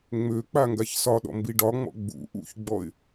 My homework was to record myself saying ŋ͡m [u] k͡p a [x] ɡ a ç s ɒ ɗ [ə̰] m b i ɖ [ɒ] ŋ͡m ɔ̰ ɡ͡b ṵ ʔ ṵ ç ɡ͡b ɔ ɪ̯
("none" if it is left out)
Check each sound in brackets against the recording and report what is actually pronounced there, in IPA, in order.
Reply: ø, ŋ, ɔ̰, ɒ

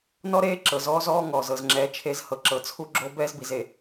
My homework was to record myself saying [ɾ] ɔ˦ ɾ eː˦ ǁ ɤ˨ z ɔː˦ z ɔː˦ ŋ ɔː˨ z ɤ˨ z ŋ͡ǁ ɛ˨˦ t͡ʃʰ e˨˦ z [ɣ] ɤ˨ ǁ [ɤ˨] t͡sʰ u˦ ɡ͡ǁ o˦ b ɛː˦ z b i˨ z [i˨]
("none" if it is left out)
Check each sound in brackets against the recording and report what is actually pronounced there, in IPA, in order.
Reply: n, h, ɤ˨, e˨

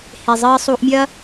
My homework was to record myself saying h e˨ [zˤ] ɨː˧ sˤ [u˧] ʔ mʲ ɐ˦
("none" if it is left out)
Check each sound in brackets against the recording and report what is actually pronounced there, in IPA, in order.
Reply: zˤ, u˧

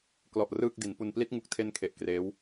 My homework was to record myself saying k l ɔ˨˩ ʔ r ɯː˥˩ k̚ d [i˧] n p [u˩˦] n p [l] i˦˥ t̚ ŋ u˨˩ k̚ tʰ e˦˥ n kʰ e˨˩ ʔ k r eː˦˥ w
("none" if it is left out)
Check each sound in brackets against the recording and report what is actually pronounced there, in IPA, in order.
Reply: i˩˦, u˧, l

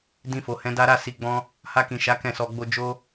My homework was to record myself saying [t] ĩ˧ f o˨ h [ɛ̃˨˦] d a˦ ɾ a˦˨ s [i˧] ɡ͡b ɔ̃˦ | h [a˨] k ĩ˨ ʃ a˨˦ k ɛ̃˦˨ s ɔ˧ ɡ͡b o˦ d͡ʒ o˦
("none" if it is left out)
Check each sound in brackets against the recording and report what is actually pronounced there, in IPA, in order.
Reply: d, ɛ̃˨˦, i˧, a˧

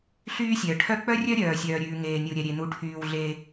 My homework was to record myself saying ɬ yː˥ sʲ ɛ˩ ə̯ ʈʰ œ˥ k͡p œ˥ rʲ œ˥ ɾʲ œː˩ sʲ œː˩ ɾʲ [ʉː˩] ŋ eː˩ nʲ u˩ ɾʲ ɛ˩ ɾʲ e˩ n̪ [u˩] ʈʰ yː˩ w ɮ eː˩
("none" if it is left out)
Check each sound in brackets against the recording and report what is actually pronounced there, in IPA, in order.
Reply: ʉː˩, u˩

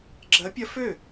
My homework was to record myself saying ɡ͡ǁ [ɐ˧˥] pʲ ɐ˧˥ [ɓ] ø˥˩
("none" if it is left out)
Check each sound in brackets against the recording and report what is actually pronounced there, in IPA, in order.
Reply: ɐ˧˥, f

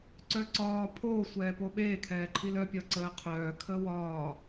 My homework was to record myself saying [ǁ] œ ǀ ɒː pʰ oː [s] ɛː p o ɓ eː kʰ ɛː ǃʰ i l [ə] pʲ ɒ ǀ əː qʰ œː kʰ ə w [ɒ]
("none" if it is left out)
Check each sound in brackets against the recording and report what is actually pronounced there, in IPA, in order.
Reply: ǀ, sʷ, œ, ɒː

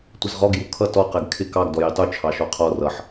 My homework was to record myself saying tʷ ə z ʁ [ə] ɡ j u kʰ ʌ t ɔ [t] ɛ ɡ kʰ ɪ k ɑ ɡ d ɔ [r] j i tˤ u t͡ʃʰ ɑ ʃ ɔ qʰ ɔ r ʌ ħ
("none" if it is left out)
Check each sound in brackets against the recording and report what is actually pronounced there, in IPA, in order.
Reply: ɔ, q, none

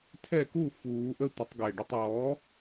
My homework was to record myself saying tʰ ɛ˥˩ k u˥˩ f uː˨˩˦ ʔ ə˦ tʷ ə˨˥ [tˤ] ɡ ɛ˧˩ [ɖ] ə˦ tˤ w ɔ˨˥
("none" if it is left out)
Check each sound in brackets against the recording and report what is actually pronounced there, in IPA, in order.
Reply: tˤ, ɖ

